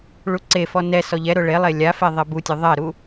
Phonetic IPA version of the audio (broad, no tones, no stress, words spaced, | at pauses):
ɭuǀefɔ nɛ sɔʎɛɾʊ ɭelˠe lʲafe ðˤebutʲʊ ðˤɛɾu